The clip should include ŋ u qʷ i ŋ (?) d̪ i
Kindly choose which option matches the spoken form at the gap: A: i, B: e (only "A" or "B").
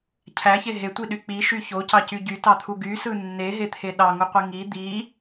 A